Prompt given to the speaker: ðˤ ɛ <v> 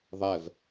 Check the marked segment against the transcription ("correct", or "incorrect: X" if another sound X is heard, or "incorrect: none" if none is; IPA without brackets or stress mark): correct